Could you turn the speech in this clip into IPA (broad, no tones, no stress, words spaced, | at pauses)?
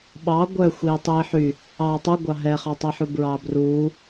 ɓɑ ɡʷœxʷiː tˤiːħy | ɑːtˤuɡʷɑ ɦɛχɑtˤiħu bɹɑːbruː